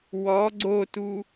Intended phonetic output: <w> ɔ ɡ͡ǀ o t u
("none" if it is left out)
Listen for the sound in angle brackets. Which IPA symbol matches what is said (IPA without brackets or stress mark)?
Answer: w